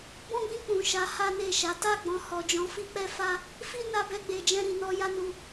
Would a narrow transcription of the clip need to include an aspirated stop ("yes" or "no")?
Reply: no